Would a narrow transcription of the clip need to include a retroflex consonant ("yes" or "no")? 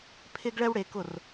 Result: yes